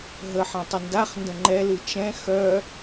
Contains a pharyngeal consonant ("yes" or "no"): yes